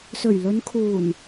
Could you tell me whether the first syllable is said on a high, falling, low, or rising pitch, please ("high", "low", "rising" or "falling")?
low